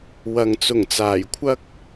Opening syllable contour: low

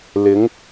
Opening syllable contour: rising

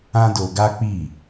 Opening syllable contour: high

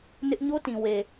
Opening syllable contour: high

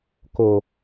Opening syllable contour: low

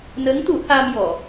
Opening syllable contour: rising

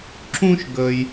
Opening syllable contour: high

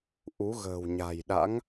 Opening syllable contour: rising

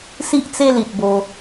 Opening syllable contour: high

